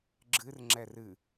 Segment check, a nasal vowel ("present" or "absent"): absent